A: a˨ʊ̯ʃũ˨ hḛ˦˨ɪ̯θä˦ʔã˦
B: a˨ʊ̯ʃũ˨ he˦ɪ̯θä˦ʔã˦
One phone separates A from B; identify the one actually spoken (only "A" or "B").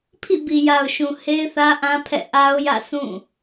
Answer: B